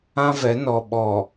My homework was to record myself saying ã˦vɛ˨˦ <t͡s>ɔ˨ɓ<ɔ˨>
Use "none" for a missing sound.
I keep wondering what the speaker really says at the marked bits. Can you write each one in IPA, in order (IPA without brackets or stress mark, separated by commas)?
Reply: n, ɔ˨